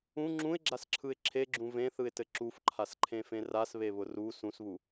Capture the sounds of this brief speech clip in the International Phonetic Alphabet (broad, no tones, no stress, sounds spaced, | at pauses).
ũ ŋ͡ǁ ũ ɪ̯ ɡ͡ǁ a s ǁʰ ɯ ɪ̯ ǁʰ e ɡ͡ǁ ũ v ẽ θ ɯ ɪ̯ t ɘ ǁ u f ǃʰ a s ǃʰ ẽ f ẽ r a s β e β ʊ r u s ũ s β u